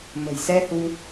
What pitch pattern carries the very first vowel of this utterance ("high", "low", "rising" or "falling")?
low